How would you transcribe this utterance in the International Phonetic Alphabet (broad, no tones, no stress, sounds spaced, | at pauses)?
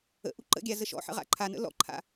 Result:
ə̰ ʔ u ǃ ə̰ ɡʲ a z ə ʃ ɔ̰ ħ ə̰ ʁ a̰ ǃʰ a n ə̰ l ɔ̰ ǃʰ a̰